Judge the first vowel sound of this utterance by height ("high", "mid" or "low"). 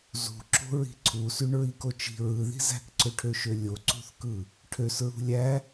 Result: high